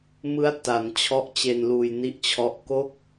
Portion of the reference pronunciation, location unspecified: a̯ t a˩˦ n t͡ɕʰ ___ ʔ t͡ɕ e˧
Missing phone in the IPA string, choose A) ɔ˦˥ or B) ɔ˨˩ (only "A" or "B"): A